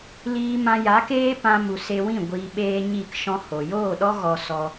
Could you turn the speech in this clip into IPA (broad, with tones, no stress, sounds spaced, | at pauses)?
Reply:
l iː˧ m ã˧ j a˨˦ k eː˦ p ã˧ m u˨ s e˧ w ĩ˦˨ ɡʷ iː˧ ɓ eː˦ ɲ i˦˨ k ʃ ɔ̃˦ h o˨ j oː˦˨ ɗ ɔ˦ ɣ ɔ˧ s ɔ˧